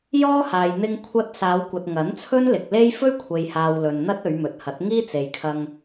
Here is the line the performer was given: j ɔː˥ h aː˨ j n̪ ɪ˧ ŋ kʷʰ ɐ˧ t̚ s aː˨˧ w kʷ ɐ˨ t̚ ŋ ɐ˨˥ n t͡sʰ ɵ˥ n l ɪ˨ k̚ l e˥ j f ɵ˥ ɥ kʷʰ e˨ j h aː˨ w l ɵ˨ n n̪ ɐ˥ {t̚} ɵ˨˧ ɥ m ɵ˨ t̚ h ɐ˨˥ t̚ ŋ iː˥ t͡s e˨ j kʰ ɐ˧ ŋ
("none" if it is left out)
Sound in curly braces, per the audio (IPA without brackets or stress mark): t̚